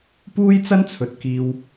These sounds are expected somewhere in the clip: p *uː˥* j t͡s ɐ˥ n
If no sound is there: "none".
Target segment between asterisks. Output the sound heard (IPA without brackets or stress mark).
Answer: uː˥